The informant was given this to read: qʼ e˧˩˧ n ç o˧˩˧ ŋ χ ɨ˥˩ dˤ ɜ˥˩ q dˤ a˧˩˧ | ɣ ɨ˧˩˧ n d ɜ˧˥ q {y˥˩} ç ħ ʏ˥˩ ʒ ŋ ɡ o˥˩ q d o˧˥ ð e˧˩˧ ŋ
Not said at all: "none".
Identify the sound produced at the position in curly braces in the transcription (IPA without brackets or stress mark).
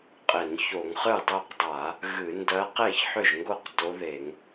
e˥˩